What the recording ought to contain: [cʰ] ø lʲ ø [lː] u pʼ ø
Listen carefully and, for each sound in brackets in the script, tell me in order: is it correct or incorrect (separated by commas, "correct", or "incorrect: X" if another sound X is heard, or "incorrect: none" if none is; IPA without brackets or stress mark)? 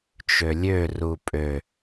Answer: incorrect: t͡ʃ, incorrect: r